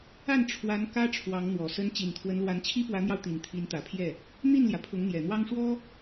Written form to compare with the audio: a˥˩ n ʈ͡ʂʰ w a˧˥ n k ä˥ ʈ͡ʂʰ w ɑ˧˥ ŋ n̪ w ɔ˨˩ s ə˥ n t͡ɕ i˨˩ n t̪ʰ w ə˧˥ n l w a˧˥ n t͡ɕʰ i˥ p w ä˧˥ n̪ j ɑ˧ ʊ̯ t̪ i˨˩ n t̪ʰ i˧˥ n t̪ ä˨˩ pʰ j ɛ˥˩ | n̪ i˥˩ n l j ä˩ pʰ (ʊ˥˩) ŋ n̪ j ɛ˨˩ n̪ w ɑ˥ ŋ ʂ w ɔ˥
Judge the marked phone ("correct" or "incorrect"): incorrect